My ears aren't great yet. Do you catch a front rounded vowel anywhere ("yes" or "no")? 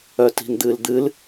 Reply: yes